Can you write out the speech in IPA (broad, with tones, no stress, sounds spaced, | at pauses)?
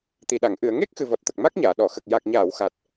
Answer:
t̪ i˨˩ ɗ a˨˩˨ ŋ ʔ ɨ˨˩˨ ə̯ ŋ e˦˥ k̚ x ɨ˨˩ v ɔ˨˩ t̚ t̪ ə˨˩ k̚ m a˦˥ k̚ ɲ aː˨˩˨ ɗ ɔ˨˩˨ x ə˨˩ k̚ j a˨˩ k̚ ɲ aː˨˩˨ w x a˨˩ t̚